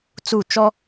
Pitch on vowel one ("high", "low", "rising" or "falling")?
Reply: falling